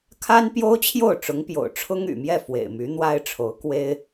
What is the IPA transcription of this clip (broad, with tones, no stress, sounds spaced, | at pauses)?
kʰ a˥ n p j o˥ ʊ̯ t͡ɕʰ j o˥˩ ʊ̯ ʈ͡ʂ ʊ˧˥ ŋ p j o̰˨˩ ʊ̯ ʈ͡ʂʰ ʊ˥ ŋ y̰˨˩ m j ɛ˥˩ f w ḛ˨˩ ɪ̯ m y˧˥ n̪ w a˥ ɪ̯ ʈ͡ʂʰ o˧˥ ʊ̯ k w e˥ ɪ̯